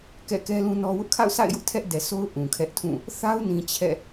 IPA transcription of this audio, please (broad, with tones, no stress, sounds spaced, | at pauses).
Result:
k ɛ̰˦˨ k ɛ˦ l ũ˦ n ɔ˦ w ʊ˦ ʔ kʰ a̰˦˨ ʊ̯ sʰ a̰˦˨ ɪ̯ j ʊ˦ ʔ tʰ ɛ˦ ʔ d ɛ˨ sʰ o˦ ʊ̯ ʔ ũ˨ kʰ ɛ˦ ʔ tʰ ũ˦˨ | θ a˦ ʊ̯ n ĩ˨ t͡ɕʰ ɛ̰˦˨